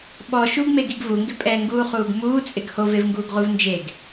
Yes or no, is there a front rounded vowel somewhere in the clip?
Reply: no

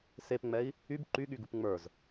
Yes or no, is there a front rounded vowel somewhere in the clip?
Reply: yes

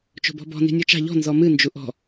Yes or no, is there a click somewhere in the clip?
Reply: no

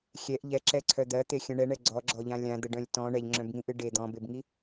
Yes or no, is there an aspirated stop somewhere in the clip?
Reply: yes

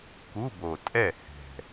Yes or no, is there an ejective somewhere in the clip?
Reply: yes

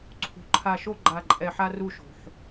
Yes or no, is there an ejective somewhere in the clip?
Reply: yes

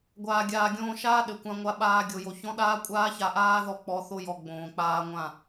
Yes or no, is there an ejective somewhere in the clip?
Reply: yes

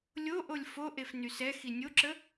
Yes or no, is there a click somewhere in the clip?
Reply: yes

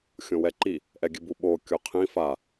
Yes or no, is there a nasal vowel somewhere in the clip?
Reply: yes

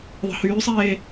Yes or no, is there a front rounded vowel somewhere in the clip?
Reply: yes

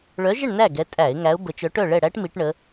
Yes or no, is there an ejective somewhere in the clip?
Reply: yes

